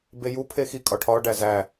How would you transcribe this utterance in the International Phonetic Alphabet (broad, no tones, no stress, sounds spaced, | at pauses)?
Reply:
b e j u pʰ e x i kʼ ɒ ʈʰ ɒ ɖ æ z æ